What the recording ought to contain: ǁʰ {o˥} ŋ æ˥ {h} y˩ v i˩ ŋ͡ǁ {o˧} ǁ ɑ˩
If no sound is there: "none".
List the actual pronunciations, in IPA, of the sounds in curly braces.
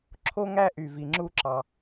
o˥, ʔ, u˧

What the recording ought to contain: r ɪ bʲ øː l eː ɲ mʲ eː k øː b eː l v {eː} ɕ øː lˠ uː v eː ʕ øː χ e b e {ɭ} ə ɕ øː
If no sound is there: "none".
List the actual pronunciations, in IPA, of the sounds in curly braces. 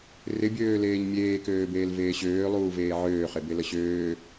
eː, l

